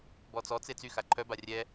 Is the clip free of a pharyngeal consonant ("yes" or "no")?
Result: yes